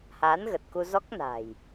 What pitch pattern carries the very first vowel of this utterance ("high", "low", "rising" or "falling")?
rising